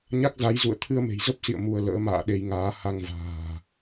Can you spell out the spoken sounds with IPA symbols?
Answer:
ɲ a˦˥ k̚ z a˨˦ j z ṵ˧˨ ə̯ t̪ʰ ɨ˧ ə̯ m e̤˨˩ j z ə˦˥ p̚ s ḭ˧˨ ə̯ m u˧ ə̯ l ə̰ː˧˥ m a̰ː˧˨ ɗ e˧ j ŋ aː˨˦ h a˧ ŋ v a̤ː˨˩

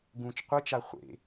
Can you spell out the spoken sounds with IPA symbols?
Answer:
ɡ ũ t͡ʃ qʷ ɨ t͡ʃ a χʷ ḛ

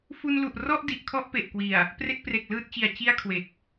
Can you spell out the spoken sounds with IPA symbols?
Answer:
f u˧ n l u˨˩ ʔ r ɔ˥˩ ʔ d i˨˩ ʔ kʰ ɔ˥˩ ʔ p e˨˩ ʔ k w i˨˩ a̯ | p r e˥˩ k̚ p r e˨˩ k̚ l ɯː˥˩ t̚ t͡ɕ i˨˩ a̯ t͡ɕ i˥˩ a̯ kʰ w e˨˩ k̚

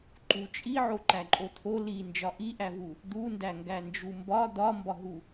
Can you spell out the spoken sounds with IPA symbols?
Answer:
ǃ u t͡ʃʼ i ʕ o ǃ æ ǃʼ o t̪ʰ o l i n d͡ʒ ɒ ʔ i ʔ æ v u | d̪ u n d æ ŋ ɡ æ n d͡ʒ u m b ɒ d̪ ɒ m b ɒ ɦ u

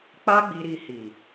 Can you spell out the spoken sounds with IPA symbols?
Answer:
k͡p a˦ ɡ͡b i˧ ɾ i˧ h i˨

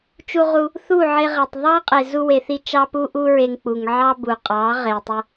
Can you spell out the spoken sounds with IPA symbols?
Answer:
t͡ʃ u˧ ʁ u˧ | θ u˦˨ ʕ e˧ ʁ e˨ tˤ ðˤ ɑ˦ qʼ e˨ z u˧ w e˨ θ i˧ t͡ʃ ɑ˦ p u˦ ʔ u˦ ɹ e˧ ŋ k͡p u˨ ŋ ʕ ɑ˦ b u˨ qʼ ɑ˨˦ ʁ e˨ tˤ ʏ˧

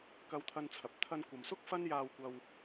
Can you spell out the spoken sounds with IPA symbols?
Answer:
k ɐ˧ w t̪ʰ ɐ˧ n t͡sʰ ɐ˨ p̚ t̪ʰ ɐ˧ n kʷ ɐ˨ m s ʊ˥ k̚ f ɐ˥ n j aː˧ w kʷ ɐ˧ w

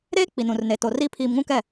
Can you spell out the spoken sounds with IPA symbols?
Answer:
ɾ eː˦ k͡p i˨ n ũ˨ r n e˨ t o˨ r iː˦ pʰ iː˨ m ŋ ũ˦ k ɛ˦˨

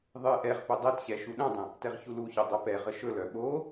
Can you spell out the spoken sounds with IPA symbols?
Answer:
ðˤ ɨ ʔ ɛ ʁ p ɵ dˤ ɛ t ɕ ɛ ʃ u ɗ œ̃ dˤ ə̃ | t ɛ ʁ ç u l u ç œ dˤ œ p ɛ ʁ ə ʃ ɵ l œ ɓ o

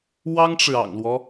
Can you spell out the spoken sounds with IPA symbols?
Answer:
w ɑ˥ ŋ ʈ͡ʂ ɻ̩˨ ɑ̰˨˩ ŋ l w ɔ˦

